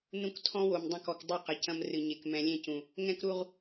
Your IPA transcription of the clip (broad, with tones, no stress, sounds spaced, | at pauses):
n ũ˦ k tʰ ɔ̃˦ w o˨ m dˤ ɐ̃˦ k ɔ˨ k dˤ u˦˨ q ɐ˨ c ɐ̃˦ m r ɨ˨ ɲ e˨ k m ɛ̃˨ lʲ ẽ˦ c ũ˨ | ŋ ɛ̃˦ k ɾ u˦ ʁ